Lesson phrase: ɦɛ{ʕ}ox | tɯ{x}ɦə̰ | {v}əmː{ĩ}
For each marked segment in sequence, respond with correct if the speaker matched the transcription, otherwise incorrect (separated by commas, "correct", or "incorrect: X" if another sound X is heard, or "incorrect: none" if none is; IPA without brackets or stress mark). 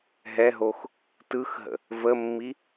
incorrect: ɦ, correct, correct, incorrect: i